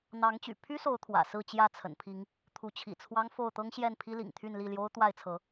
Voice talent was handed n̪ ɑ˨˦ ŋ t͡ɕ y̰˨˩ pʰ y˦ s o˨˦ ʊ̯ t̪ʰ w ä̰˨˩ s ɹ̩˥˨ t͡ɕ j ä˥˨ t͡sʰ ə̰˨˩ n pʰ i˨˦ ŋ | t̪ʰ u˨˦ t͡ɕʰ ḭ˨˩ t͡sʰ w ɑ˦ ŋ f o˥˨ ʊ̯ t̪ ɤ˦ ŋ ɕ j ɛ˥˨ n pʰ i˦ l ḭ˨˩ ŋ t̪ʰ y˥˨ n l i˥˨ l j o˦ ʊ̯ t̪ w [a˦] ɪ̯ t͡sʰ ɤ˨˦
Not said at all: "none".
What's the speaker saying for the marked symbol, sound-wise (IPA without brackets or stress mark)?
a˥˨